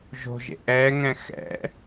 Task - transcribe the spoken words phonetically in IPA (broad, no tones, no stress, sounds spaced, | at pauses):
ʒ o̤ ʒ ḛ ʔ ɛ ŋ ɛ̃ x ɛ̰